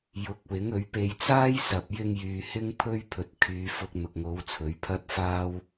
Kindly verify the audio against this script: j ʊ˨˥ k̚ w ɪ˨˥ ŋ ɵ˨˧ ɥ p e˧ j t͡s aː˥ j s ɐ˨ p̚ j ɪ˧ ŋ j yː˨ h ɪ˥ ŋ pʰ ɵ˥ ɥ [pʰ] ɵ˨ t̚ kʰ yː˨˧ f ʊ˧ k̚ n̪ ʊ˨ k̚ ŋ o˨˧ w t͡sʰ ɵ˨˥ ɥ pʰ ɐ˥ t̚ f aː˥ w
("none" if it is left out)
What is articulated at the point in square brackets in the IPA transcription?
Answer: pʰ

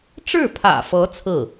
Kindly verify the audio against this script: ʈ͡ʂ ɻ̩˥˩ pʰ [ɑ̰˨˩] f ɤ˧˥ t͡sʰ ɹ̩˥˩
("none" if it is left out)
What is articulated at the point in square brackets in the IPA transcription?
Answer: ä̰˨˩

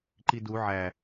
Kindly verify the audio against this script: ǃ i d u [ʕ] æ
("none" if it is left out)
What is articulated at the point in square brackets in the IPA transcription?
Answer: ʕ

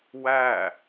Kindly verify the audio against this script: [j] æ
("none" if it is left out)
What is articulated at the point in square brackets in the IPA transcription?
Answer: w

